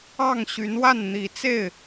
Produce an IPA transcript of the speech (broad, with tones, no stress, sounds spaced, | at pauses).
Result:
ɑ˥˩ ŋ ɕ y˧˥ n w a˥˩ n n̪ i˨˩ t͡s e˥˩ ɪ̯